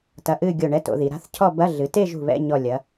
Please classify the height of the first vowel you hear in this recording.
low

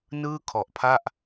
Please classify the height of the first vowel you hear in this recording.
high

